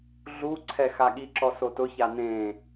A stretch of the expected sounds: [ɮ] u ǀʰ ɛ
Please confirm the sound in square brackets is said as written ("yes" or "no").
yes